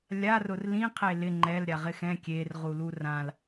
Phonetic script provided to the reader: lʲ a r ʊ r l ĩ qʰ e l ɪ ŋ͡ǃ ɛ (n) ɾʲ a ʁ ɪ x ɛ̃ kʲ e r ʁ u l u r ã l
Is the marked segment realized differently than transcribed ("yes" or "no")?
yes